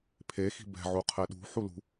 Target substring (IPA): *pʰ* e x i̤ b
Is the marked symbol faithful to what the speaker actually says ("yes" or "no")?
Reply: yes